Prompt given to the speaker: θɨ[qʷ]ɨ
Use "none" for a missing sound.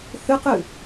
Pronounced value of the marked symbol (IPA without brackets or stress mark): q